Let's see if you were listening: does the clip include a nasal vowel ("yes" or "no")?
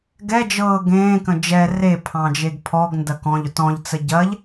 yes